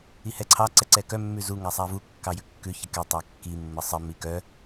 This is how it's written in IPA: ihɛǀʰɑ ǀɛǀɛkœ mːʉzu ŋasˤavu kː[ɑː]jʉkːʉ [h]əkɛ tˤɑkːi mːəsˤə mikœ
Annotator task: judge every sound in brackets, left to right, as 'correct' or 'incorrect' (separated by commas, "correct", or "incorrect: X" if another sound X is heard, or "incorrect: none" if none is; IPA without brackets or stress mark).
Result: incorrect: ɑ, incorrect: ç